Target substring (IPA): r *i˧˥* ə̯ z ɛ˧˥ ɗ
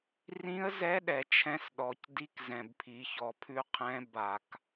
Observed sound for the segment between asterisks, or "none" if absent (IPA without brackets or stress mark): ĩ˧˥